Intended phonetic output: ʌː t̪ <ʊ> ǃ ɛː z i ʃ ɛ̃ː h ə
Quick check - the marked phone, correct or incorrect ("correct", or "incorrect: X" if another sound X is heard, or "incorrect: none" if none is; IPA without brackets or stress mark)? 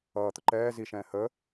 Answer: correct